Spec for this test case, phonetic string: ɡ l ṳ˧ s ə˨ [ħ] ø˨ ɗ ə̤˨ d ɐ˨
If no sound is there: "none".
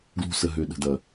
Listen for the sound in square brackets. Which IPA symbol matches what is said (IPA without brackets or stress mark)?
ɦ